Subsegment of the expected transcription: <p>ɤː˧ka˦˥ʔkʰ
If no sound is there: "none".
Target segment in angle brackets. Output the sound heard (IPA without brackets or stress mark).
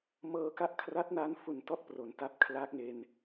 m